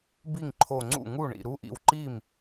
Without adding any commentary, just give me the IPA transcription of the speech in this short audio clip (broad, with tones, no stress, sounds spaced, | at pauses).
b i˥˩ ŋ ǃʰ o˧˩ ŋ͡ǀ ṵ˥˩ ŋ u˥˩ ɳ ḭ˧˩ ɾ u˦˥ ʔ ḭ˧˩ w ǃ i˥˩ m